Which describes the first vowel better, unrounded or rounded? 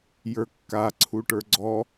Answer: unrounded